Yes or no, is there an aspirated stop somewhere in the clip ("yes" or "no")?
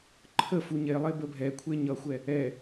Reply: yes